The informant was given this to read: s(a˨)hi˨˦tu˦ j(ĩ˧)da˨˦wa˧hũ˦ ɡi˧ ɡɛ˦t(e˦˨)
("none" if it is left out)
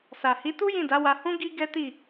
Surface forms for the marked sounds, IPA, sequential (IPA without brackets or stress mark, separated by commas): a˨, ĩ˦˨, i˦˨